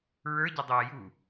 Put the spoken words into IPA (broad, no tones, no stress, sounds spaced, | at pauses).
ɹ ə˞ ɟ ɘ dˤ ɘː j u